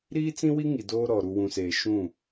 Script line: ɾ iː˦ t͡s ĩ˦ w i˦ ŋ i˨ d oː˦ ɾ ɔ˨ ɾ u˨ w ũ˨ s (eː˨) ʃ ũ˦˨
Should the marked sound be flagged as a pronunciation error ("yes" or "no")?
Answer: no